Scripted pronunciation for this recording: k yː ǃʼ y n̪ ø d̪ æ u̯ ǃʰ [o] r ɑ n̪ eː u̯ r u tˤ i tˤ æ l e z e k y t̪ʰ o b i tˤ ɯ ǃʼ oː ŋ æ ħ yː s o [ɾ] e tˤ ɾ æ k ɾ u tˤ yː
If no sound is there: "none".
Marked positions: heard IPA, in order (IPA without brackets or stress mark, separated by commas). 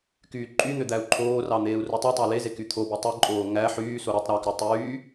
oː, ɾ